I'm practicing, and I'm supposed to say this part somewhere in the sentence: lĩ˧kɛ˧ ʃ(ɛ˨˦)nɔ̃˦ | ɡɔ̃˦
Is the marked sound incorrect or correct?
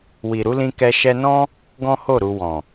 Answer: incorrect